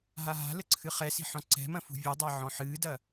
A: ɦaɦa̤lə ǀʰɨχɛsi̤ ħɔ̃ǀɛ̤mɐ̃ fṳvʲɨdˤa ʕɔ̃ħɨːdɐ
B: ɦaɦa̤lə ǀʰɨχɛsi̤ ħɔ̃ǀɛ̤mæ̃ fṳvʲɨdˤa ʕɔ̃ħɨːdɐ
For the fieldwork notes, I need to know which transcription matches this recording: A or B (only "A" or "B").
A